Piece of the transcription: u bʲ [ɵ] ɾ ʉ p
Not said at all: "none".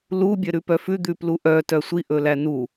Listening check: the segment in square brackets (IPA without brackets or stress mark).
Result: œ